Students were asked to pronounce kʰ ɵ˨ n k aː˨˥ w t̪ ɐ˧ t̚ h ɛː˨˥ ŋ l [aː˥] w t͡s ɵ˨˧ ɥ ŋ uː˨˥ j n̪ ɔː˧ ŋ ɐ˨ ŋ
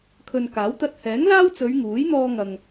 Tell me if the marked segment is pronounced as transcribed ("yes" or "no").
yes